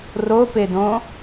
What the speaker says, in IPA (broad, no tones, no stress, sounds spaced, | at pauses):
r o p e d õ